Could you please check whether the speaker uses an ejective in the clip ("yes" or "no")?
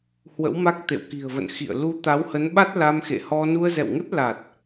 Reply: no